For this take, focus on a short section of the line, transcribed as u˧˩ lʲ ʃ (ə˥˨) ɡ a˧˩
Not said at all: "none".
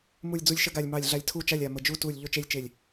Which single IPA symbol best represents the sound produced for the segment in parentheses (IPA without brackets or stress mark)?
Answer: ə˥˨